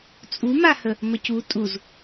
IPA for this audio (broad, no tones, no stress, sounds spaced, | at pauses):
t͡sʼ u m a h ə | m ə c u tʼ u z